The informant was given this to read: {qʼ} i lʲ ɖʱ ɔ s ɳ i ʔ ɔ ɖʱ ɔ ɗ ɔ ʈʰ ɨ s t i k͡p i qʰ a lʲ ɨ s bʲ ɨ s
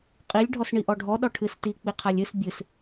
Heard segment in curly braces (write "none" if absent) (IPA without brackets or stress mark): qʼ